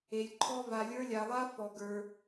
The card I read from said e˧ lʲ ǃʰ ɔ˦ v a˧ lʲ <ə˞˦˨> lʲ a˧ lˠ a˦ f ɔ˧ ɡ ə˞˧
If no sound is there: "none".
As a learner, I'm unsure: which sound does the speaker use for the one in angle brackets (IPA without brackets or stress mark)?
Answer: ə˞˦